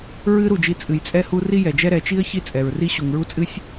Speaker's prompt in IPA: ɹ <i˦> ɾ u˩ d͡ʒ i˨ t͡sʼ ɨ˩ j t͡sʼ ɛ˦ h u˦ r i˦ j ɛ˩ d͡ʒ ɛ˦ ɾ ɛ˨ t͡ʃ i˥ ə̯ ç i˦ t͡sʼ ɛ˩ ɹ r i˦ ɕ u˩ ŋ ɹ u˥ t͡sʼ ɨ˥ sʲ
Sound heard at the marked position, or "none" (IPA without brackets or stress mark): ɨ˦